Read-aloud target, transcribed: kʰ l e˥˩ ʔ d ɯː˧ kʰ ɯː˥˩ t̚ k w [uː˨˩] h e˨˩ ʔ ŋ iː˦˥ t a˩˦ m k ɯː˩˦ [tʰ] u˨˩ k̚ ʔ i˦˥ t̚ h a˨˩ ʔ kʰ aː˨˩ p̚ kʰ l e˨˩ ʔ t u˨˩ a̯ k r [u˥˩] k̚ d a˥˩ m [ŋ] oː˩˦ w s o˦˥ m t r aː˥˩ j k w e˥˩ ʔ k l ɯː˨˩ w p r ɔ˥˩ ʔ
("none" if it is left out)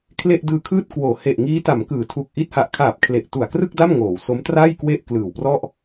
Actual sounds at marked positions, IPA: oː˨˩, tʰ, ɯ˥˩, ŋ

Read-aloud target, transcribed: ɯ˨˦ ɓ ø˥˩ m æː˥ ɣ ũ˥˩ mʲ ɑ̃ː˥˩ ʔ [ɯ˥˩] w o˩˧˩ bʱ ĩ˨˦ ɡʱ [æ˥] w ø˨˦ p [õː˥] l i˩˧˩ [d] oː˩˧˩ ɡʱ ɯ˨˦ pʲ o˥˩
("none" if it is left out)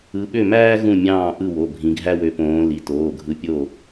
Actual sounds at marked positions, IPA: ɯ˥˩, æ˥, õː˨˦, t

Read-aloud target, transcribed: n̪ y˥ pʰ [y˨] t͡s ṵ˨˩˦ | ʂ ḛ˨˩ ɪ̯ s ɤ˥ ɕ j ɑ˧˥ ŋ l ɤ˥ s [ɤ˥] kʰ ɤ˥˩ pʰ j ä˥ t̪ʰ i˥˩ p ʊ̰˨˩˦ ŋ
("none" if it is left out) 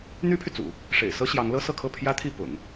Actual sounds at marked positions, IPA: y˨, ɤ˥˧

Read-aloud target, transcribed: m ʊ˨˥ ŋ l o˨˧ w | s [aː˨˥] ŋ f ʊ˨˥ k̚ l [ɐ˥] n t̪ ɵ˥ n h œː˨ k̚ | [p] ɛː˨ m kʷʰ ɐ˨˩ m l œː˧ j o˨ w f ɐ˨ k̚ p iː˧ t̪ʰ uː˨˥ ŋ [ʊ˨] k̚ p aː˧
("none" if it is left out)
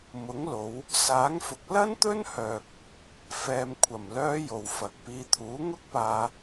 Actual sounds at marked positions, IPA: aː˨˥, ɐ˥, f, ʊ˥

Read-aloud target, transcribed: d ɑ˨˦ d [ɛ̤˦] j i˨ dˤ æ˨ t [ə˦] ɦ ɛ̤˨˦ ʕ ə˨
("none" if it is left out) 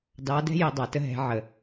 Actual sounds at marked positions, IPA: ɛ̤˦, ə˦

